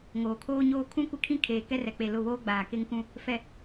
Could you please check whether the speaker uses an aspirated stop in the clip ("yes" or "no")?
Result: yes